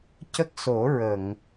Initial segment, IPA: c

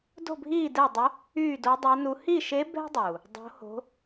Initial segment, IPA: d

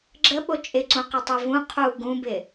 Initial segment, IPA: ɡ͡ǁ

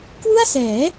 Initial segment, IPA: k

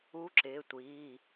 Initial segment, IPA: u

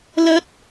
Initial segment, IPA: l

